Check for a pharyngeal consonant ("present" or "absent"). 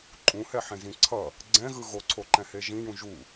present